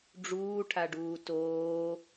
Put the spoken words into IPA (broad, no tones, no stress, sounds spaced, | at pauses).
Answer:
ɖ͡ʐ uː ʈʰ a ɖ uː t oː